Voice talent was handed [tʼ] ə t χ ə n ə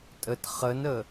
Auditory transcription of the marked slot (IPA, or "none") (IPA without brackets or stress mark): tʼ